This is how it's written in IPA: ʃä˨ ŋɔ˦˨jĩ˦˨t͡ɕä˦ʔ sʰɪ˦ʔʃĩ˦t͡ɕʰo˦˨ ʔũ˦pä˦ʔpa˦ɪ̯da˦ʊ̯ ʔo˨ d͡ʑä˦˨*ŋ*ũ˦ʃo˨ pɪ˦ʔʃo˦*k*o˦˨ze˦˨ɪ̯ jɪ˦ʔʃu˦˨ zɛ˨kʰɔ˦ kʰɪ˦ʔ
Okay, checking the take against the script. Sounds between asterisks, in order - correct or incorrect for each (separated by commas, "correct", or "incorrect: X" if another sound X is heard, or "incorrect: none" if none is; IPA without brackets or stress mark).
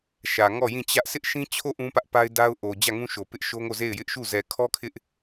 correct, incorrect: ŋ